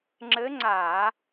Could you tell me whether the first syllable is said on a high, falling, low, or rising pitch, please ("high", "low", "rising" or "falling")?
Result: rising